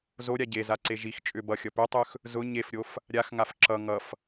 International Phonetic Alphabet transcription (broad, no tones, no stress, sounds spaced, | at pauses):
z o ɾʲ a ɟ e z a ǀ e ʒ i x t͡ʃʼ ʏ b ʌ xʲ ʌ p ø tˤ ø x | z ʊ ɲ e f ɾʲ o f | ɾʲ a x ŋ a f ǁ ʌ ŋ ʌ f